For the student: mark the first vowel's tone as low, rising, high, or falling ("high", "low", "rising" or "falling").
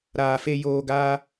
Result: low